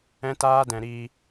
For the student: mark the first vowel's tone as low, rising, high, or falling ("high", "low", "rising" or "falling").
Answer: high